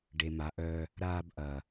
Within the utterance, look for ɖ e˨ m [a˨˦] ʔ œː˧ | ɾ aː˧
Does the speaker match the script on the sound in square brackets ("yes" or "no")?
yes